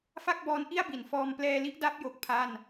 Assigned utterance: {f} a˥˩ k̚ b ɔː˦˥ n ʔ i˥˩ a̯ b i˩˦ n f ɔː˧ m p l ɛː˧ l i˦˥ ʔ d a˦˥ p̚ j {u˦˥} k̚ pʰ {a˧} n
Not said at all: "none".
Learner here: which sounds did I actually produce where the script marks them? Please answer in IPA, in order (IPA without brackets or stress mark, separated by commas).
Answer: f, o˦˥, a˥˩